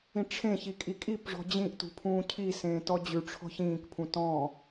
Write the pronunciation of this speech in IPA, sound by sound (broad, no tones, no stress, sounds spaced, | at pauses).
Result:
ĩ ʈ͡ʂʰ ẽ ç i kʼ i kʼ i p ʐ ɔ̤ d͡ʑ ĩ ʔ t ṳ pʰ ũː cʰ i s ẽː t ɔ d͡ʑ ʉ ʈ͡ʂʰ ɔ̤ ç ĩː k pʰ ũ t ɔ̃